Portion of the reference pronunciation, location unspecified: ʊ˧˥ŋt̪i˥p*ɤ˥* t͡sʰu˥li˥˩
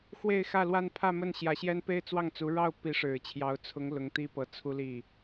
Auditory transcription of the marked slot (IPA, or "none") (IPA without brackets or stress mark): ɤ˧˥